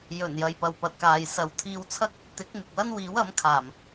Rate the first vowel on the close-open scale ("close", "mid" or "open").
mid